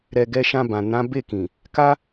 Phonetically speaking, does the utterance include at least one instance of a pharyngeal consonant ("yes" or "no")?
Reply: no